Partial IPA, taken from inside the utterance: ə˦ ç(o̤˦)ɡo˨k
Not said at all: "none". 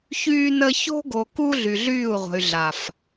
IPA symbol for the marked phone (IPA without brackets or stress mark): o̤˦